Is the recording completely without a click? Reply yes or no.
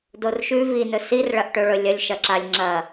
no